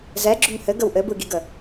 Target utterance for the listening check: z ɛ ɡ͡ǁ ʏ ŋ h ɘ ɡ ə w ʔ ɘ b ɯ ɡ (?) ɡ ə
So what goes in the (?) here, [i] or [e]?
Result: i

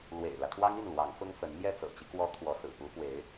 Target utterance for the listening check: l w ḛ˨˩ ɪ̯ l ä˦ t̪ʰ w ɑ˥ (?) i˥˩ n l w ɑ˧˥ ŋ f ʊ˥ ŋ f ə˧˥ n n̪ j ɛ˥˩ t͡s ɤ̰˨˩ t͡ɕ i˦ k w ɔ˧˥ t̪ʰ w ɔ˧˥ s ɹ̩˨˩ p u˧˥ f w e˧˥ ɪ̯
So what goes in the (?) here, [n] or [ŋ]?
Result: ŋ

